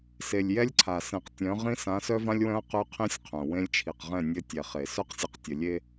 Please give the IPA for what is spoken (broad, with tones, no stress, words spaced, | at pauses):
se˨lʲjɛ˦lʲǀʰa˨ sẽ˨qtʲœ̃˨˦ʁĩ˦ sã˨˦sœ˦vã˦lʲwœ̃˦ɐ̯ qœ˦qʰĩ˦sʲqʰœ̃˨ wẽ˦lʲt͡ʃʰi˨q ʁɛ̃˦˨nʲɘ˦ tʲɛ˨χe˨ sœ˦qsʲə˨qtʲə˨lʲe˦